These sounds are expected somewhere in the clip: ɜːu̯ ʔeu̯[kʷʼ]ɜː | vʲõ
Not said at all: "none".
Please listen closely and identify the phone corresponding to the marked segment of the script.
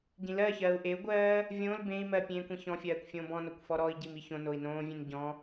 ɡʷ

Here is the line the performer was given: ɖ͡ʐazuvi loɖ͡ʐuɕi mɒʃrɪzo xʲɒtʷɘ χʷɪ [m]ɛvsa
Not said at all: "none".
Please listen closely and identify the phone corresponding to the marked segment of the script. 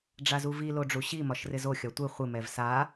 m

